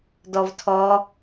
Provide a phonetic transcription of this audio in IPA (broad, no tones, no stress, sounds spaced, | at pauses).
d ɔ v tʰ ɔ